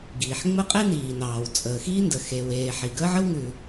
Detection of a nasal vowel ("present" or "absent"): absent